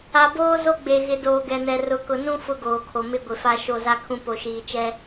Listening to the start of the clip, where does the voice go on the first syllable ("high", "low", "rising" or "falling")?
low